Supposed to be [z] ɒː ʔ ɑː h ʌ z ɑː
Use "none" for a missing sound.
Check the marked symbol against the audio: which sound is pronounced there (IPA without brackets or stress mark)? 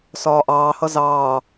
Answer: s